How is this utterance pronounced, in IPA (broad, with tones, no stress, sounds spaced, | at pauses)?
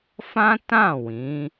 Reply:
f ã˦ t ã˦˨ w ĩ˨˦